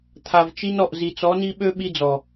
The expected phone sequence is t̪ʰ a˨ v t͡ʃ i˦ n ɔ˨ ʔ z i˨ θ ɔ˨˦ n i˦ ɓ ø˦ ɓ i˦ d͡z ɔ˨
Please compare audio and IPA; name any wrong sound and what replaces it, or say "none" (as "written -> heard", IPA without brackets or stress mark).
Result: θ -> t͡s